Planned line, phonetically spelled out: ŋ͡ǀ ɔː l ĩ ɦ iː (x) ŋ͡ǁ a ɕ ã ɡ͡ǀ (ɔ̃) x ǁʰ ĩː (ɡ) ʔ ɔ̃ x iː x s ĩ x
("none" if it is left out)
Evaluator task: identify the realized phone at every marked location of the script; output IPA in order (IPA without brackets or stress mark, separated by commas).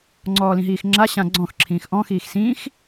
x, ɔ̃, x